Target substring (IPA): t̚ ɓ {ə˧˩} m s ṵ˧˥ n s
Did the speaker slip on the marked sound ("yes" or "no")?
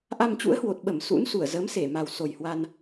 no